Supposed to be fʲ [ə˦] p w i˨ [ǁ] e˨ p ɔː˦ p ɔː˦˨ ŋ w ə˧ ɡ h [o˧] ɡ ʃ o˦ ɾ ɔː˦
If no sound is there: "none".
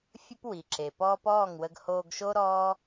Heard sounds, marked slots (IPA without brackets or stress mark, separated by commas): ə˦, ǁ, oː˧